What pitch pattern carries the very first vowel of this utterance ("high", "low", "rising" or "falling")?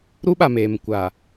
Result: high